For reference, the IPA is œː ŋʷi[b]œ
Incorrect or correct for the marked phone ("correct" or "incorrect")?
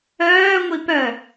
incorrect